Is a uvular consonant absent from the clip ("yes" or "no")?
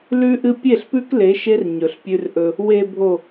yes